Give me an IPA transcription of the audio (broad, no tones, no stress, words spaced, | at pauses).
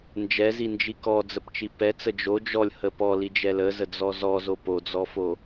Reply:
nd͡ʒɛzind͡ʒi kɔd͡zəpt͡ʃi pɛt͡sə d͡ʒo d͡ʒɔlʲhə pɔlid͡ʒɛ ləzəd͡zɔ zɔzo pod͡zɔfo